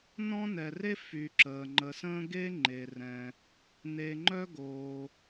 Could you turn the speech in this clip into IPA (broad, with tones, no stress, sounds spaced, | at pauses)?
n ɔ̃˥ n ɛ˨ r e˥ f y˨ ǁ əː˩ ŋ͡ǃ ə˨ s ə̃ː˥ ɡ e˥ ŋ͡ǃ e˩ r ɛ̃˩ | n e˨ ŋ͡ǃ œ˥ ɡ oː˩